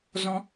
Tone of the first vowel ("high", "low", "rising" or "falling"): high